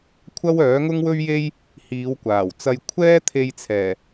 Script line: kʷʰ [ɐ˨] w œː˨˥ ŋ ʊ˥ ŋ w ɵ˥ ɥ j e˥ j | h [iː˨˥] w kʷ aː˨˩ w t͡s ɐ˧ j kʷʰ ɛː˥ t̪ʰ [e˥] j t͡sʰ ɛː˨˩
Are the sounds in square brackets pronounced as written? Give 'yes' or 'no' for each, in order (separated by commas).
no, no, no